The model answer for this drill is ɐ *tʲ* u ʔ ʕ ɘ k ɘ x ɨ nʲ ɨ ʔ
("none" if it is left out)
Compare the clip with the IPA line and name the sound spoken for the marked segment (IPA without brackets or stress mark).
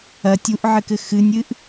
tʲ